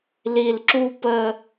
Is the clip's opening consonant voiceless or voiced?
voiced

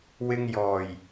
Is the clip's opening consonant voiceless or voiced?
voiced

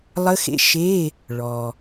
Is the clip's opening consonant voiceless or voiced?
voiced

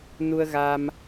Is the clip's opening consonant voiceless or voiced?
voiced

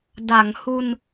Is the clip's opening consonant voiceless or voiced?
voiced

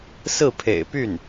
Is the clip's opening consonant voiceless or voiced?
voiceless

